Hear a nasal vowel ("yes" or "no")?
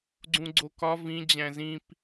yes